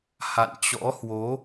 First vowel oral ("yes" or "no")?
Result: yes